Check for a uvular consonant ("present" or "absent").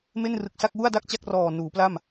absent